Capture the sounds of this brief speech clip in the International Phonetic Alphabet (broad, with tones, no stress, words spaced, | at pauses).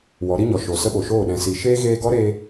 wɔ˨˦ɾi˦ɲɔ˨ ʃo˨ sə˦ɓo˨ʃoː˦˨ ɗɛ̃˨si˨ ʃeː˦ɣeː˧ ɡɔ˦ɾeː˧